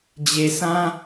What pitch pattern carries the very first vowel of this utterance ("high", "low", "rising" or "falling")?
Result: low